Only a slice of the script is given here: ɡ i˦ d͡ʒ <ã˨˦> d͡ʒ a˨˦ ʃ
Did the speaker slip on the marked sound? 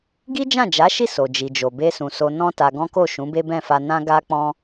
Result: yes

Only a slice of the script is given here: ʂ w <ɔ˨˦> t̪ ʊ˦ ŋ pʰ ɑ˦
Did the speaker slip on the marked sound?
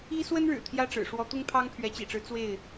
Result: no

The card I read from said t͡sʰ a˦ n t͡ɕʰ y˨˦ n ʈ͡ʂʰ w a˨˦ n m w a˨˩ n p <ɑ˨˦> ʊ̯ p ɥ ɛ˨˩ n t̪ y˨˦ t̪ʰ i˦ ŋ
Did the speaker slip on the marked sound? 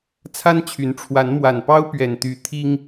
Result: yes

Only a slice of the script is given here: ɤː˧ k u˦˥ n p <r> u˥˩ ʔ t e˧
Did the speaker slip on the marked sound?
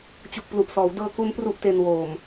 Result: no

